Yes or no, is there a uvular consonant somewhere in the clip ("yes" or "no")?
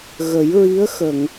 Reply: no